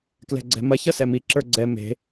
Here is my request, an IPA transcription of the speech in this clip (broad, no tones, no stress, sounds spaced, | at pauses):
k l ɛ̤ ɡ͡ǀ ɛ̤ m ɐ ç ʌ s ɛ m i ǁ ə˞ ɡ͡ǀ ɛ m e̤